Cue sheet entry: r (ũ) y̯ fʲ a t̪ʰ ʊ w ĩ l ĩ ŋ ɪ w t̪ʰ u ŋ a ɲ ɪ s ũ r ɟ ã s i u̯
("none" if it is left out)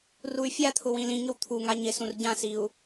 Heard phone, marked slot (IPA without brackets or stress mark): u